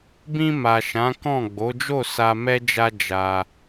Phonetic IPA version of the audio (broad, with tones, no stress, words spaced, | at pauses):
bĩ˧ma˨ ʃã˨˦kɔ̃˦˨ ɡ͡bo˨˦d͡ʒo˦˨ sa˧mɛ˦d͡ʒa˦ d͡ʒa˧